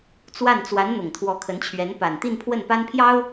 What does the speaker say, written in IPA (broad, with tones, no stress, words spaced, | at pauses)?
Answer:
t͡swa˥˩n t͡swa˧˥n n̪ʊ˨˩ŋt̪ʰwɔ˧˥kʰə˧˥nt͡ɕʰɥɛ˧˥n pa˨˩nt̪i˥˧npʰwə˥˩n pa˥npʰjɑ˥ʊ̯